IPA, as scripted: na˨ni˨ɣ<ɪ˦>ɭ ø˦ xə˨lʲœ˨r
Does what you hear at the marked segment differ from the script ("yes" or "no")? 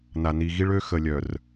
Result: yes